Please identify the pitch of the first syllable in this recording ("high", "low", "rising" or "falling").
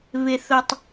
low